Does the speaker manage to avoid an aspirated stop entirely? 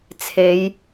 no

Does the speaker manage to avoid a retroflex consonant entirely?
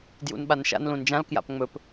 yes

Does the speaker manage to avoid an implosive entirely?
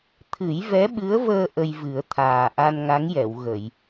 no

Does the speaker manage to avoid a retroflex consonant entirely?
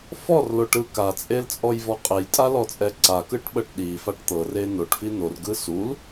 no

